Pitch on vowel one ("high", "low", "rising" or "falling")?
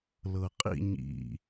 low